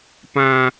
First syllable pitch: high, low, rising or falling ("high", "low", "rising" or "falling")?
low